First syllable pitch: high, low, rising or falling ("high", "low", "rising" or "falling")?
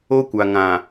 high